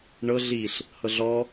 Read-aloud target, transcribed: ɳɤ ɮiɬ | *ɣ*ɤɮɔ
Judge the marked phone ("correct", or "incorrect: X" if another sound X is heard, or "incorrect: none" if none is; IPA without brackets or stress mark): incorrect: h